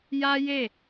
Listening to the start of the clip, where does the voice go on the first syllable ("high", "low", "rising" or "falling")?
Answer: high